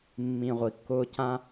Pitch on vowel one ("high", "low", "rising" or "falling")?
low